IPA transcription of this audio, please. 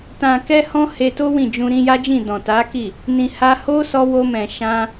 t ã˨ k ɛ˧ h ɔ̃˦ h e˧ t o˦ w ĩ˦˨ d͡ʒ ũ˧ ɾ ĩ˧ j a˦ d͡ʒ ĩ˦˨ d ɔ̃˨ t a˨˦ k i˦˨ | n ĩ˨ h a˧ h o˦ s ɔ˧ w o˧ m ɛ̃˨ ʃ ã˧

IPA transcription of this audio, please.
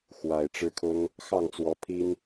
x w a˨˩ ɪ̯ ʈ͡ʂ ɻ̩˦ kʰ ʊ˦ ŋ | x ɑ˥˨ ŋ t͡s w ɔ˨˦ pʰ i˦ n

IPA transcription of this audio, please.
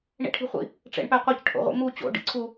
ɳ ḭ ʈʰ i̤ χʷ ḭ | ʈ͡ʂ ḛ ɳ p æ qʷ e c ʈʰ o̰ ʁʷ ḭ m u t͡ɕ o̰ ɖ ḭ ǀʰ u

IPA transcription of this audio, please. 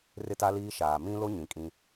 r ɪ˦ t a˦ l iː˦ ʃ aː˨ m ĩ˦ l o˦ ɲ ĩ˨ kʼ ĩ˦

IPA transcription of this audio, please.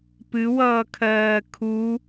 p ɨ w ʌː kʰ ɜː kʰ u

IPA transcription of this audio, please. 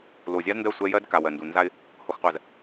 l o˨ zʲ a˦ z n d ɜ˦˨ sʷ ɛ˦ j ɜ˦ d k a˨ w ɜ˨ n d u˨ n z a˦ ɪ̯ | h o˨ x qʷ ɜ˨ z

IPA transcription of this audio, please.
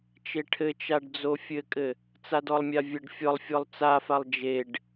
t͡ʃ e ʈʰ ɘ t͡ʃ a ɖ d͡z o fʲ ɘ kʼ ɘ | t͡s a d ɔ lˠ mʲ a vʲ ɘ ɖ fʲ ɔ lˠ fʲ ɔ lˠ t͡s a f a lˠ d͡ʒ e ɖ

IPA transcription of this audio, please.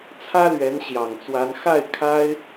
t͡sʰ ä˥ l ɥ ɛ˧˥ n ɕ j ɑ˨˩ ŋ t͡s w a˧˥ n x a˥˩ ɪ̯ kʰ a˥ ɪ̯

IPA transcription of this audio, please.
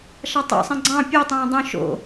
ʃ ɑ tˤ ṵ sˤ ĩ ɡ͡ǀ ɑ̃ pʲ u tˤ õː dˤ ũ ʃ o̰

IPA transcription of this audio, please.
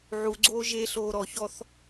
ʕ u ɡ͡ǀ oː ʒ e ɬ oː ɾ ɔ ç ɔ θ

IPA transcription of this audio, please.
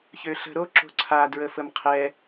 ç ø ɬ ə̤ ɾ o ǁ o̤ ǀʰ a d ɹ ə f ə m qʰ ɛ

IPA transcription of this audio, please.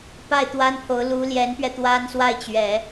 p a˥˩ ɪ̯ t̪ w a˥ n pʰ o˧˥ ʊ̯ l u˧˥ l j ɛ˧˥ n p ɥ ɛ˧ t̪ w a˥ n s w a˥˩ ɪ̯ t͡ɕ ɥ ɛ˨˩˦

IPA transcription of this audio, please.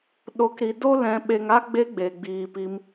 ɗ o˨˦ k ɾ i˨ d o˦ l ɛ̃˨ ɓ e˨ ŋ a˧ ɡ͡b e˧ ɡ͡b e˨ ɡ͡b iː˨ p i˧ m

